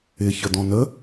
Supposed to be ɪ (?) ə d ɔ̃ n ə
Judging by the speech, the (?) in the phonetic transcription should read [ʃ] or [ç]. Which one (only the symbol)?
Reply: ç